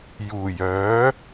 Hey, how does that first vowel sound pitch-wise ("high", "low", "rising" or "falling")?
low